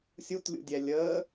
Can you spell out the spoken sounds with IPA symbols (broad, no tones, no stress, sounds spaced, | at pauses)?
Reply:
sʲ u t lʲ ṵ dʲ ɛ lʲ əː